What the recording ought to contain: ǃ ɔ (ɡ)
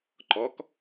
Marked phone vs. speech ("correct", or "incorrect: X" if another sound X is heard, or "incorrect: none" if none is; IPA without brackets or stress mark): incorrect: k